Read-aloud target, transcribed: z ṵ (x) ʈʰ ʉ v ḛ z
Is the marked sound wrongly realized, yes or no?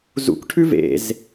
yes